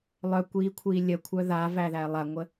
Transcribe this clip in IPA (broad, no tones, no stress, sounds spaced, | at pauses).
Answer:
lˠ œ kʷ iː kʷʰ iː lʲ ə kʷʰ œ ð a v æ ð æ lˠ a ŋʷ ə